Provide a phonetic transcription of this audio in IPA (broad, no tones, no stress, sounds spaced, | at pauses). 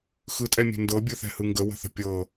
x ɯ tʼ ɛ mʲ ɛ̤ n d ɤ bʲ ɯ θ ɛ̤ h ɯ ŋ ɡ ə w ə̤ θ ə̤ pʲ ɤ